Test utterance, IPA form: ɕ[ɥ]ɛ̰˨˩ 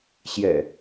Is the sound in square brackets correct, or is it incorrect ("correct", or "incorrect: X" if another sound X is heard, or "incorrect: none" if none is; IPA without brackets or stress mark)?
incorrect: j